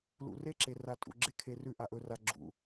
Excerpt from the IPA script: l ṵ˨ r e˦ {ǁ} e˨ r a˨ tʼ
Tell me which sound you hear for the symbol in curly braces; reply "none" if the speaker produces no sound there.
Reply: ǁ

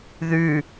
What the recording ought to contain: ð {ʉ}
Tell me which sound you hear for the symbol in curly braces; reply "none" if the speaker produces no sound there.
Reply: ʉ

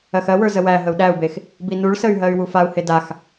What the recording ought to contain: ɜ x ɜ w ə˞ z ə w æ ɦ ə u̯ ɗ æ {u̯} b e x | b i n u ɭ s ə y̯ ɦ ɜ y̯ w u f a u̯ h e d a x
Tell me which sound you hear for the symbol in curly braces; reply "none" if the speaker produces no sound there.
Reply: u̯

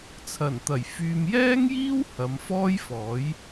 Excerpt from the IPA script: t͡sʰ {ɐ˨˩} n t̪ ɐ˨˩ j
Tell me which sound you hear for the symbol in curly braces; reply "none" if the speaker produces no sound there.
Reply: ɐ˨˩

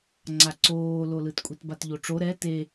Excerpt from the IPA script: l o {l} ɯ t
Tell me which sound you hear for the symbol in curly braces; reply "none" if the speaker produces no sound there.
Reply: l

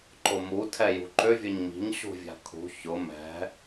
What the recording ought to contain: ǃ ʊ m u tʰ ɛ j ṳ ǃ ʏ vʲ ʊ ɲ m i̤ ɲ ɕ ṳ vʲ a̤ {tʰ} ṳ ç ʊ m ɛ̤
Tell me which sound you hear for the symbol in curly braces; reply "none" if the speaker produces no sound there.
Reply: kʰ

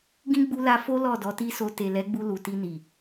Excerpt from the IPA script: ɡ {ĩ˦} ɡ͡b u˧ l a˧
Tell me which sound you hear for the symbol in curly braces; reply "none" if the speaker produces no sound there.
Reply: ĩ˦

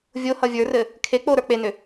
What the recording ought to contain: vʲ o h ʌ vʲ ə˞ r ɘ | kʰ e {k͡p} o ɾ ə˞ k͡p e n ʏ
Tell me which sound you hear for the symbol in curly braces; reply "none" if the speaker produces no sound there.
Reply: k͡p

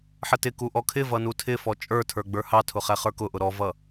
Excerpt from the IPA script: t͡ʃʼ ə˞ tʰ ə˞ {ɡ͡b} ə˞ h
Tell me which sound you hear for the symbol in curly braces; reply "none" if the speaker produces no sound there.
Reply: ɡ͡b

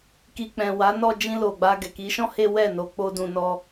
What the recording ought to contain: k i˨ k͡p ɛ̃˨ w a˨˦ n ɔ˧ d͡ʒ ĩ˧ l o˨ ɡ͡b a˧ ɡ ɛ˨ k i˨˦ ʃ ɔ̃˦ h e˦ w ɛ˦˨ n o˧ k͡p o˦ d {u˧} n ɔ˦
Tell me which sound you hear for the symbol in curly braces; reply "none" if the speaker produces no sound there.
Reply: ũ˧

